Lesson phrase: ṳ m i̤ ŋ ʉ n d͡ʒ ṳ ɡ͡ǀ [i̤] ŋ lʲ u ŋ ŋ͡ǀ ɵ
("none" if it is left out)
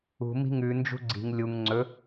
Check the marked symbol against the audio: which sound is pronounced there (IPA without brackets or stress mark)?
i̤